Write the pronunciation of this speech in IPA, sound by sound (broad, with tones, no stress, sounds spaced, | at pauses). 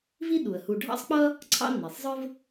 v i˦ ɗ u˩ ə̯ h u˨ ɖʱ ɑ̰˥ sˤ k͡p ʌ˥ | ǀʰ ɑ̰˥ nː i˩ sˤ zˤ ə˞˥ v